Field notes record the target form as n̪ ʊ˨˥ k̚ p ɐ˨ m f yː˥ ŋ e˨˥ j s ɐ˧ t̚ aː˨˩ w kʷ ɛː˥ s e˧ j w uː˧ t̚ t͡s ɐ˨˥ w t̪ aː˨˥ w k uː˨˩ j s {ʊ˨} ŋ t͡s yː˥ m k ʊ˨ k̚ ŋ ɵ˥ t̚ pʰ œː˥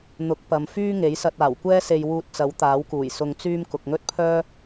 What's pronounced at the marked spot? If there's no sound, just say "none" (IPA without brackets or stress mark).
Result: ʊ˧